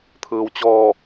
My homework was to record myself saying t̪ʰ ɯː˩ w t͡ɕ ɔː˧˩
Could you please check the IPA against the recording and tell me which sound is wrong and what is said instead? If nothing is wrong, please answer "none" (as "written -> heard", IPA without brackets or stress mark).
none